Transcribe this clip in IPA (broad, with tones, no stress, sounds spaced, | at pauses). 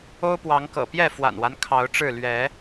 o˦ ʊ̯ p w ɑ˨˦ ŋ k ɤ̰˨˩ p j ɛ˥˨ f w a̰˨˩ n w a˦ n kʰ ɑ˨˦ ʊ̯ ʈ͡ʂ ɻ̩˥˨ l ɥ ɛ˨˦